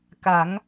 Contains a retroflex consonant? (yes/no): no